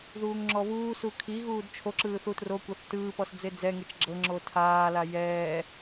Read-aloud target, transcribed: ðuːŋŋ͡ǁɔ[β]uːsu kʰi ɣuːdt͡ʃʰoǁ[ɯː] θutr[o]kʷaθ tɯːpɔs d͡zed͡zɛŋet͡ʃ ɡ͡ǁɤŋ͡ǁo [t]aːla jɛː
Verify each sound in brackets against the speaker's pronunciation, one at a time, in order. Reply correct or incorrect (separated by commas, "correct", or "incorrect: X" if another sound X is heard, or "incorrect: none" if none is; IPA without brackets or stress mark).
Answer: correct, correct, correct, incorrect: tʰ